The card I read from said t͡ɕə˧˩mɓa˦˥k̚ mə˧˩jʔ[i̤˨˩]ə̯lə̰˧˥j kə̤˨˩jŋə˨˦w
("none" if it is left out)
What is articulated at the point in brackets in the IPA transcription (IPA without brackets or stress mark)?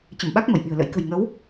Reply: i̤˨˩